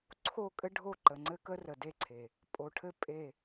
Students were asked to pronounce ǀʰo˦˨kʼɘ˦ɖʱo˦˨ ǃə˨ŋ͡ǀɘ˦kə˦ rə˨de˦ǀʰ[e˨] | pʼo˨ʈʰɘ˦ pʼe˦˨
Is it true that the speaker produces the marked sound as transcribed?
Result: yes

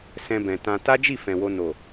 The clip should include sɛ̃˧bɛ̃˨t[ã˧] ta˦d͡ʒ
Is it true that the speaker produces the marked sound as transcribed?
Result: yes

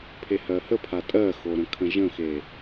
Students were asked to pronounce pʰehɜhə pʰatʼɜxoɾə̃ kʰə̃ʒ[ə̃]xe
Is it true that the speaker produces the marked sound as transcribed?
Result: yes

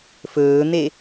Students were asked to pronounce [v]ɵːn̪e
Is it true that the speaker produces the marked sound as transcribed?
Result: no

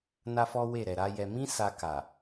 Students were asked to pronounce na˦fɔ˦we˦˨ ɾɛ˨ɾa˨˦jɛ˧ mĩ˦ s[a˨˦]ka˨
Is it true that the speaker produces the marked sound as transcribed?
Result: no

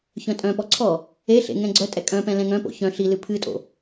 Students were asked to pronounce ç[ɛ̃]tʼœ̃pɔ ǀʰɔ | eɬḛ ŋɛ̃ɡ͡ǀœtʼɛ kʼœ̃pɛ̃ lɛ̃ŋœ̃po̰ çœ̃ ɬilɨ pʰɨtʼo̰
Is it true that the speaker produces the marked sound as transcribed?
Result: no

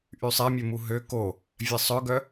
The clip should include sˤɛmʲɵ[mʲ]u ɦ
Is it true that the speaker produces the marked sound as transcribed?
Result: no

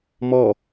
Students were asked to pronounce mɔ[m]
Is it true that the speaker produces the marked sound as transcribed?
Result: no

